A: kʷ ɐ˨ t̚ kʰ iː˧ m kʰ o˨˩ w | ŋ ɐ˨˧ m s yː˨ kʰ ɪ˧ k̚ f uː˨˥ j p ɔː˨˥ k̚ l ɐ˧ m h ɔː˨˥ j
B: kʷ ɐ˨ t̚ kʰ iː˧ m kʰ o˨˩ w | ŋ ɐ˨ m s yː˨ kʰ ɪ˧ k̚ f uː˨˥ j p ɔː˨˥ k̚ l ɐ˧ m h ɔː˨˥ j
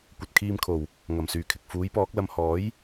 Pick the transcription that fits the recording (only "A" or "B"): B